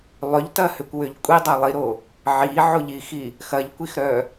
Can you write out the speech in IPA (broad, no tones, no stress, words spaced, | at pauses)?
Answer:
lˠʏʎtɐhʏkʷwʏʎ kʷʼidˤɐ lˠiɾo | ʕiʕoʎixi | xɐʎkʷixɾœ